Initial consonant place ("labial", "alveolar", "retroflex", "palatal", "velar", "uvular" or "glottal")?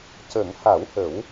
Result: palatal